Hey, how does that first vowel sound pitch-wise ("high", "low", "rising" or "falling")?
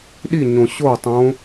falling